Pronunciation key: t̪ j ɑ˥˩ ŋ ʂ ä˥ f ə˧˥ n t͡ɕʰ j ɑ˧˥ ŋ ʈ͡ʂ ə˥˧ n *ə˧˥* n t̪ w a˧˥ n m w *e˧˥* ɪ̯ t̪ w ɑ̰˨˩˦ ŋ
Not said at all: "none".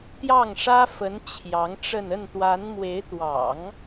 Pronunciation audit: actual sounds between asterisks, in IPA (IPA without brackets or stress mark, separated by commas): ə˥˩, e˧˥